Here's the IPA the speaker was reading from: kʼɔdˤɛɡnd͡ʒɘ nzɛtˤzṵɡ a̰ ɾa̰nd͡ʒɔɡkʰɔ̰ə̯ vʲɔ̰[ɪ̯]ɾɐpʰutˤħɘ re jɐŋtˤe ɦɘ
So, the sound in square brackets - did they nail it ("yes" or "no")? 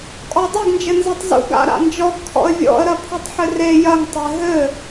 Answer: no